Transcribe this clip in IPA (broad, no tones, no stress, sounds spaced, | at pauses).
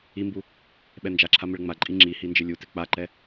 i m b u | ɓ ɛ n d͡ʒ a ǁʰ a m ɪ ɭ ŋ͡m a ǃʼ i ŋ͡ǁ i h i n d͡ʒ ɪ lʲ u t ɪ k͡p a ǃ ɛ